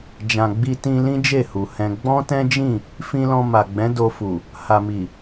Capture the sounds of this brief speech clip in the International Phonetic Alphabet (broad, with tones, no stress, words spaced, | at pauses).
d͡ʒã˨ɡ͡bi˧tĩ˧ lĩ˦d͡ʒe˦˨hu˨ hɛ̃˧ ɡ͡bɔ̃˦tɛ̃˦d͡ʒĩ˦˨ | fĩ˧lɔ̃˧ ma˨ɡ͡bɛ̃˨˦do˧fu˨ | ha˨mi˨